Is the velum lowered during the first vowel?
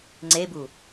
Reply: no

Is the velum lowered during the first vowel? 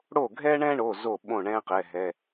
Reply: no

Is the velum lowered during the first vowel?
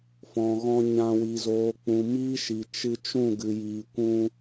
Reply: yes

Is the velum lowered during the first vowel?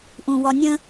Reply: yes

